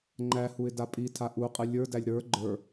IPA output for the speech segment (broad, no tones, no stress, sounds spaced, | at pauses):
ŋ͡ǃ æ h u ɪ̯ d a pʼ i tʰ a ʔ u qʼ ɨ lʲ ə˞ d æ lʲ ɾ ə˞ ɡ͡ǃ ə˞